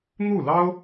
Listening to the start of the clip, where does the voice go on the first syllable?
falling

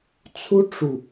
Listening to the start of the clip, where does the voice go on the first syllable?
high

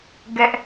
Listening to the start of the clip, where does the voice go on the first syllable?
high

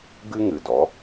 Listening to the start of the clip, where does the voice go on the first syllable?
high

